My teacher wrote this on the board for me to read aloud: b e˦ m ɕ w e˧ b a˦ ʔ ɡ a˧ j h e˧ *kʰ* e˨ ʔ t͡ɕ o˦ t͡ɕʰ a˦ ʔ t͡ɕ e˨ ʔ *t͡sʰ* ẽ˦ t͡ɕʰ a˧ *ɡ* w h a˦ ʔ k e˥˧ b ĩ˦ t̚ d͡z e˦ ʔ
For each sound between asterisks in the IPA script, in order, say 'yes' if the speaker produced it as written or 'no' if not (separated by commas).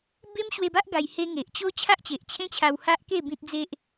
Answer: no, no, no